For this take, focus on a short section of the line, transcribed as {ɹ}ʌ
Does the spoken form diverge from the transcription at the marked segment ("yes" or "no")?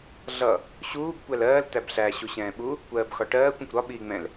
yes